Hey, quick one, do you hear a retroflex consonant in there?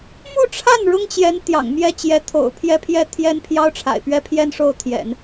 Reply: yes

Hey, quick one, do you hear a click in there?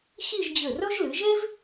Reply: no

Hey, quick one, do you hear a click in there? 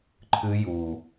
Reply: yes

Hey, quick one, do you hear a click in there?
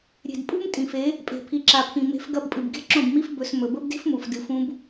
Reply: yes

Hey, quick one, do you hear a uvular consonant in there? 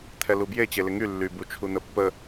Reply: no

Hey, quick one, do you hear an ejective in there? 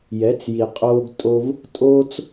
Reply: yes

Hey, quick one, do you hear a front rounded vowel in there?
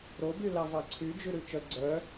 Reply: yes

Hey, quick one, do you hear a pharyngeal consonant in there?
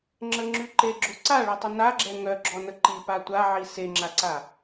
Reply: yes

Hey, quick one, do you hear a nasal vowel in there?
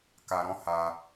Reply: yes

